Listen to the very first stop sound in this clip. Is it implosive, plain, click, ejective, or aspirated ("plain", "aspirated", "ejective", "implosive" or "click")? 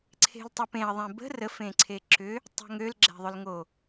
click